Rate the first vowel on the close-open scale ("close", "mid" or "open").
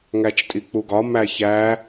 open